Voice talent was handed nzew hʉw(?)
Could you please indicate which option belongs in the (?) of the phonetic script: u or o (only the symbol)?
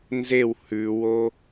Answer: o